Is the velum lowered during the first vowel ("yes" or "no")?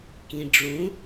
yes